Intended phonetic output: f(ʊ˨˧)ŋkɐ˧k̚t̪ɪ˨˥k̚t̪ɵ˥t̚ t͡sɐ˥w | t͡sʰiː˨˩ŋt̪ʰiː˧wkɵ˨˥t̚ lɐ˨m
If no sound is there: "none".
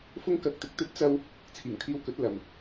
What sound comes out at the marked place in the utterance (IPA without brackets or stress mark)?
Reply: ʊ˥